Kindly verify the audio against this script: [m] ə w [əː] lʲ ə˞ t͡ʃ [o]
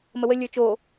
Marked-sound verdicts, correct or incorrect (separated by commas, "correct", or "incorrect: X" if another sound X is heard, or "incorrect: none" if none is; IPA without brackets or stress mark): correct, incorrect: ə, correct